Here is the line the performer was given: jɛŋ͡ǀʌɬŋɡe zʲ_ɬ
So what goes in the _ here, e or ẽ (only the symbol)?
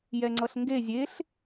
e